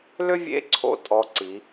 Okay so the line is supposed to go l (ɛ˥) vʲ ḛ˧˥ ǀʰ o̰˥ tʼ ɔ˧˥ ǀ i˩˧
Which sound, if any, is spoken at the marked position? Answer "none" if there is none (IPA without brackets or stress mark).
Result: ʏ˥